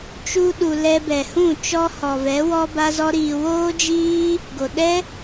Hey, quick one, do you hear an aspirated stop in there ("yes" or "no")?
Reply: no